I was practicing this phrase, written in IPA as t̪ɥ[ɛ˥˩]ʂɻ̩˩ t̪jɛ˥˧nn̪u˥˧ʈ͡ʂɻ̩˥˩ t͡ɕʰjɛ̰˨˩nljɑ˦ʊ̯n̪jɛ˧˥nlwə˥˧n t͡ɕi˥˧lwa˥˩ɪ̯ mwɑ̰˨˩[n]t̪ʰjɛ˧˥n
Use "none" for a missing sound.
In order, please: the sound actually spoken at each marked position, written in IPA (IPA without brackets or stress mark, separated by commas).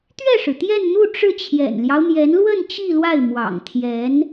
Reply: ɛ˥˩, ŋ